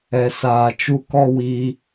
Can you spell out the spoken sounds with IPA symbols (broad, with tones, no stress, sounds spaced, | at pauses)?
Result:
ɛ˨ s aː˨ t͡ʃ u˧ k ɔ˦ w iː˧